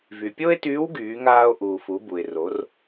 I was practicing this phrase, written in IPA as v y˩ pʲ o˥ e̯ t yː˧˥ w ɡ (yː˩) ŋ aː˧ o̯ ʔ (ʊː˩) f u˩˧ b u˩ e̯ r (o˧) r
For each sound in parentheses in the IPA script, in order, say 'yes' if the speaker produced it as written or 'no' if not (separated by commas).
no, no, no